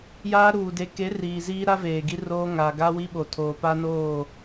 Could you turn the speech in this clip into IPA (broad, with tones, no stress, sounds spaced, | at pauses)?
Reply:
j aː˦ ɾ uː˨ d e˨ k e˨˦ r iː˨ z iː˦ ɾ a˦ v eː˨ ɡ i˦ r oː˦ ŋ a˨ ɡ a˦ w i˦ ɓ o˨ tʰ oː˨ p a˦ n oː˦˨